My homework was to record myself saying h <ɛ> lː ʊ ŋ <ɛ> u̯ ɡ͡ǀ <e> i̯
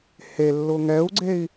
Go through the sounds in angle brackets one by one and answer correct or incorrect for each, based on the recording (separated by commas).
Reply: incorrect, correct, correct